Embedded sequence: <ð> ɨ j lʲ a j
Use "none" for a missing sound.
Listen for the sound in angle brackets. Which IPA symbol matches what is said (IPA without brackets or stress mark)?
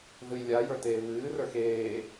ð